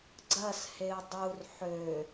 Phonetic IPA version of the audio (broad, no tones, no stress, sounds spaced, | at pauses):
ɡ͡ǀ ɐ s h e u̯ dˤ u r ħ ø